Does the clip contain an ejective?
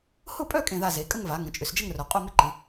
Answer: yes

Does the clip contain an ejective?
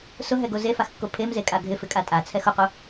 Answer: yes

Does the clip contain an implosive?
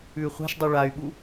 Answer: yes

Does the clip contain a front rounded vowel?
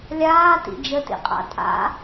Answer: no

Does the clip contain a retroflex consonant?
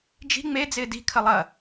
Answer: no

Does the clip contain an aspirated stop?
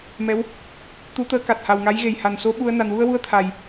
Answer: yes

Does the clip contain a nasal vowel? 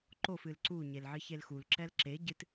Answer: no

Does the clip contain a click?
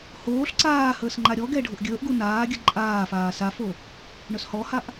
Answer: yes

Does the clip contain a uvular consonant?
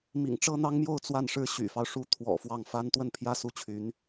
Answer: no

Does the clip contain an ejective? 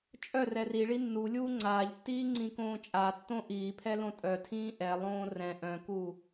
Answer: yes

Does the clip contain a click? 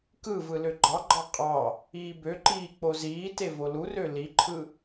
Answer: yes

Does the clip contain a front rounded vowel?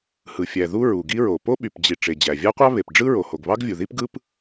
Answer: yes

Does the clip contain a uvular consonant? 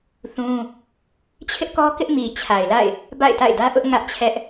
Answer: no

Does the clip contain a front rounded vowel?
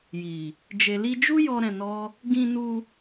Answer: no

